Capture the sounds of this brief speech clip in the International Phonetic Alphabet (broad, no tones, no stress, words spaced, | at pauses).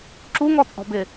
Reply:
ǁuŋɔt͡sʼɔ̤bɪ